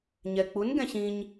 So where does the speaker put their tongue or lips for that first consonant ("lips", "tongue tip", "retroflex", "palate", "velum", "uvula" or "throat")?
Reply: palate